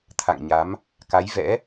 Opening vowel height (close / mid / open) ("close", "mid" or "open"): open